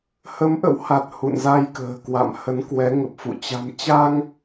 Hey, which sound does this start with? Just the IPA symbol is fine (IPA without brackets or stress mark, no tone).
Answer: h